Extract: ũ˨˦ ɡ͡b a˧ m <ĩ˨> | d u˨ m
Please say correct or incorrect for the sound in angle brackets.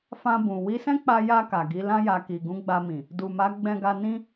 correct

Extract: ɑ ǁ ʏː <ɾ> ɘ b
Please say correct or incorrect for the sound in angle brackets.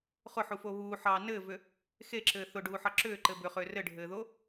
incorrect: ǃ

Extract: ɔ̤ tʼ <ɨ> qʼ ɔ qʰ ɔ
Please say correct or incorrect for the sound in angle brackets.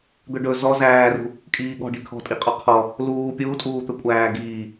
incorrect: i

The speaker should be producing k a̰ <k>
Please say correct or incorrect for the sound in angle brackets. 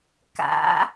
incorrect: none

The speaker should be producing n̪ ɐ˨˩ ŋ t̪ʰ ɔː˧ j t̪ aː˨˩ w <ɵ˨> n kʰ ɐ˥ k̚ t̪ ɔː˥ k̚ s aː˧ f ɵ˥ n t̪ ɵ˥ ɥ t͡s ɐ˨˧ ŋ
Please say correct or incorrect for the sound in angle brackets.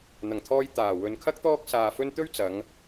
correct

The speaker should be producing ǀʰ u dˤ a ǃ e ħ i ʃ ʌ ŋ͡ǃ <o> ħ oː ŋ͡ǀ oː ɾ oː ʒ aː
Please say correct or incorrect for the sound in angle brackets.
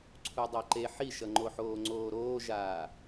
correct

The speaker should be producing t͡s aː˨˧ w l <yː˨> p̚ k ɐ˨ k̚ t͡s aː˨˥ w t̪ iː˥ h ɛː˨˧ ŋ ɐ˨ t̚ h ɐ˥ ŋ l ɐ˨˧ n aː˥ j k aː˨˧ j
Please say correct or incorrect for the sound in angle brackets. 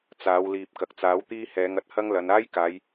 incorrect: iː˨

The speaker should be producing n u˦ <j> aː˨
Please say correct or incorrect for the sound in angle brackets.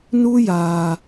correct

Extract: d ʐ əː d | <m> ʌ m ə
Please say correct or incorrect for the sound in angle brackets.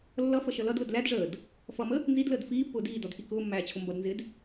incorrect: f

